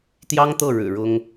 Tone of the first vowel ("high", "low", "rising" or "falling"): high